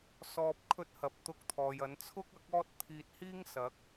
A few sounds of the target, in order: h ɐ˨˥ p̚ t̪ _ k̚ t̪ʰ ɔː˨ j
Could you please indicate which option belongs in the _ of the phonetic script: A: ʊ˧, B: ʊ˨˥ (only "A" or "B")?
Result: A